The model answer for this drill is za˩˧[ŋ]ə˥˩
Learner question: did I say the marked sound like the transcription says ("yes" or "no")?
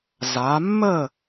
no